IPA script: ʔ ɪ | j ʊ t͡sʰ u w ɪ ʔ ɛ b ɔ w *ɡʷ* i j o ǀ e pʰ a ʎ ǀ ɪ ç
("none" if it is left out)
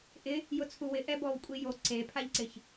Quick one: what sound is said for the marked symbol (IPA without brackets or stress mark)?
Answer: kʷʼ